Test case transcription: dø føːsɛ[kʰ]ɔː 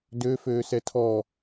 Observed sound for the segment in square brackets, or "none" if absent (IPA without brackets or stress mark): tʰ